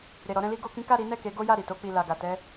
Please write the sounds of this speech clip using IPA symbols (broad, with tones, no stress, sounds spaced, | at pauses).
ɾ e˨ ɾ ɔ˧ ɾ ɛ̃˧ l i˦ ɡ o˧ k ĩ˦ k a˦˨ ɾ i˨˦ n ɛ˦˨ k e˨˦ ɡ o˦ j a˦˨ ɾ i˨ t o˧ k͡p i˨ l a˨ ɡ a˨ t ɛ˧